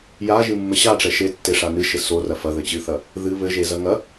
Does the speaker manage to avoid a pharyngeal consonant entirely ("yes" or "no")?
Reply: yes